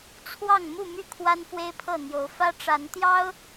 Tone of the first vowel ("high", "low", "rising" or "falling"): falling